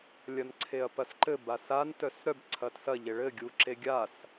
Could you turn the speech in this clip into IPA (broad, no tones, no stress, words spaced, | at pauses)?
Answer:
lʲɐnǀʰeɐ̯pɐsǃɘ basan tœsɾœb ǀʰɐtsɐ ʎeɭɘ ɡʲuǁeɡʲas